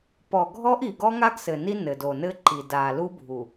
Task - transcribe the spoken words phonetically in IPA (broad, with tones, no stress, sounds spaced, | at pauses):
p ɔ˨ ɡʱ ɔ˦ ʔ i˨ ɡ ɔ˦ ŋ a˦ ɡ s ɘ˨ n i˦ n ɘ˨ d o˨ n ɘ˦ ǃ i˨ d a˨ l u˦ bʱ u˨